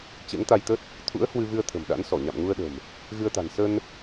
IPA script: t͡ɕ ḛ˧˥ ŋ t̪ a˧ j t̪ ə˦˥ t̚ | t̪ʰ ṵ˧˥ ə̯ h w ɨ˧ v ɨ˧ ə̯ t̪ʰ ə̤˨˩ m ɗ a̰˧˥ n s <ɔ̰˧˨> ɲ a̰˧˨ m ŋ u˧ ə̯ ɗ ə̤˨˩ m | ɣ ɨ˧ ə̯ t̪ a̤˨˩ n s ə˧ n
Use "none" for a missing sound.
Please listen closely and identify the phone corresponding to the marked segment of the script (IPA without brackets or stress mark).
ɔ˧˩